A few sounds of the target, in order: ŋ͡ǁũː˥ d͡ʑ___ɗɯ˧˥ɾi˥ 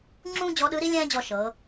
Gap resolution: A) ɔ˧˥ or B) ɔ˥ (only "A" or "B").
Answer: A